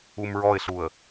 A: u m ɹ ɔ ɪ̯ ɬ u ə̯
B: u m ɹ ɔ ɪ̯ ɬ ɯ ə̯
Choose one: A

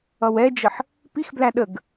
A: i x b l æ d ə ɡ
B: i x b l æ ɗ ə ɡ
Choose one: B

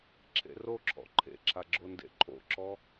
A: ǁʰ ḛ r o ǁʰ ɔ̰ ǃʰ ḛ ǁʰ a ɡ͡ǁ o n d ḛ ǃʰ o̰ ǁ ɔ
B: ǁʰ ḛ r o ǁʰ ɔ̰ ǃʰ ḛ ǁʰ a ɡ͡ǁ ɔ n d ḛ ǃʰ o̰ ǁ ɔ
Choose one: A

